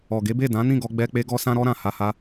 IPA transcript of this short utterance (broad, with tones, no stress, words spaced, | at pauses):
ɔ˨ɡe˨˦be˦˨ dã˨˦nĩ˦˨ɡɔ˧ ɡ͡bɛ˧k͡pe˧ ɡɔ˧sã˧ɾɔ˧ɾã˨ ha˧ha˦